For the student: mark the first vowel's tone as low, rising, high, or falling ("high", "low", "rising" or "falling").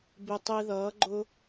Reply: low